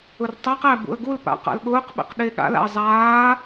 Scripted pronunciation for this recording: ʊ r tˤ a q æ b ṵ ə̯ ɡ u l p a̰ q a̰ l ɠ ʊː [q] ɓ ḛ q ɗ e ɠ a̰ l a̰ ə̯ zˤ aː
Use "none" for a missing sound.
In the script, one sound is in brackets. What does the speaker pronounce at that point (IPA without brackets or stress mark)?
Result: q